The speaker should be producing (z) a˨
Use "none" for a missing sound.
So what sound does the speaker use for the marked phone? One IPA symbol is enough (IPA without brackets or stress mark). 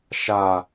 ʃ